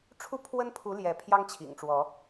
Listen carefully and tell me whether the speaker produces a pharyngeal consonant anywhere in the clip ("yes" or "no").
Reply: no